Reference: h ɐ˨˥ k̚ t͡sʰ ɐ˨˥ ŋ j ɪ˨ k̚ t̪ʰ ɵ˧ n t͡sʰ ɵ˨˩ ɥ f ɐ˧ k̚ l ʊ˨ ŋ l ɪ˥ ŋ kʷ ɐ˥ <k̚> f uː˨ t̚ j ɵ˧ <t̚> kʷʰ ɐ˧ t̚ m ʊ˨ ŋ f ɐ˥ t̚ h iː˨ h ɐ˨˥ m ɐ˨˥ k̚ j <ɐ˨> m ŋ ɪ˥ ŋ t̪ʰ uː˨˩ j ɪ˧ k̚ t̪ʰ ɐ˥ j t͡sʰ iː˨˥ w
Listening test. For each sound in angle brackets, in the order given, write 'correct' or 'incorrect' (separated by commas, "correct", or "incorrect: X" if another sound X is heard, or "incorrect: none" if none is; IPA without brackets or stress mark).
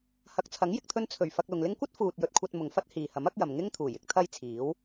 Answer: incorrect: t̚, correct, correct